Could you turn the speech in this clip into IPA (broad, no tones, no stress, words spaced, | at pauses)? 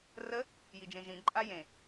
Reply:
rə | jid͡ʒẽʒĩ ǃʼajẽ